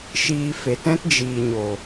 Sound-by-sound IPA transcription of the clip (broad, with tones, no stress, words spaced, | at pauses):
ʃiː˧fe˨t ɛ̃˦td͡ʒiː˨ɲo˨